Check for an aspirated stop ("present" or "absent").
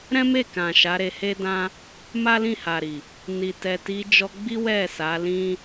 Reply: absent